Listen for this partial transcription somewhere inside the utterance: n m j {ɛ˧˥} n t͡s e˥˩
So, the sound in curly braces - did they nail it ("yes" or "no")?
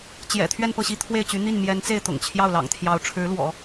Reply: yes